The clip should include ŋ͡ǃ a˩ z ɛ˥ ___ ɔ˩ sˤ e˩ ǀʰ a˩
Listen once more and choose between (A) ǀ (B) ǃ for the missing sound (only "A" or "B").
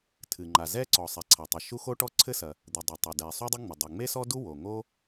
A